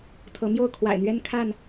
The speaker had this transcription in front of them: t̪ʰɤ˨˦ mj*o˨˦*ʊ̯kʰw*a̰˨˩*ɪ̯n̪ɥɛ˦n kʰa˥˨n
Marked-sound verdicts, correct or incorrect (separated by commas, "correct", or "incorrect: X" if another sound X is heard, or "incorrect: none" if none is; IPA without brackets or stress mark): incorrect: o˥˨, correct